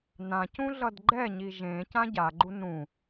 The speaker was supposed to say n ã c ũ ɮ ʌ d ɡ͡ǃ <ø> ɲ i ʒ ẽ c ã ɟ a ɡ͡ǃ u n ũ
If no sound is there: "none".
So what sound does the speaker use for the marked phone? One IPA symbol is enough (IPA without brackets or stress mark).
ɛ